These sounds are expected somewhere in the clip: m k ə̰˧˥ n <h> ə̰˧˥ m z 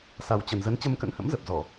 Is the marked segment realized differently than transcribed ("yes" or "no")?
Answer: no